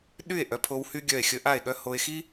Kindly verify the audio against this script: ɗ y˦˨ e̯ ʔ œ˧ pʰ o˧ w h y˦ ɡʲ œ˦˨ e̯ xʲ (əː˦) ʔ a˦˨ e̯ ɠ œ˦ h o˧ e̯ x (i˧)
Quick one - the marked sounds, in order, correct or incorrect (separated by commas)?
incorrect, incorrect